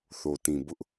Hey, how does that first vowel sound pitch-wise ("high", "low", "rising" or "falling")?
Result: low